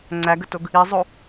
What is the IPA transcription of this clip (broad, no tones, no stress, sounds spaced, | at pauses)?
ŋ͡ǀ æ ɡ ə t o ɡ | i zˤ o